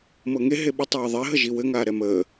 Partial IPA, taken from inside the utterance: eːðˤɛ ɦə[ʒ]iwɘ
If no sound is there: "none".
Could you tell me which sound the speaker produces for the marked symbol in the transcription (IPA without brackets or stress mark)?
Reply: ʒ